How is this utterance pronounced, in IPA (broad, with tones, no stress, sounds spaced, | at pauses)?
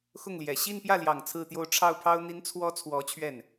x ʊ˥˩ ŋ l j ɛ˨˩ ɕ i˥˧ n p j ä˥˩ l j ɑ˨˩ ŋ t͡sʰ ɹ̩˥˧ t̪ j o˥˧ ʊ̯ ʈ͡ʂʰ ɑ˥˩ ʊ̯ pʰ ɑ˥ ʊ̯ n̪ i˧˥ n t͡sʰ w ɔ˧˥ t͡sʰ w ɔ˧˥ t͡ɕʰ ɥ ɛ˥˩ n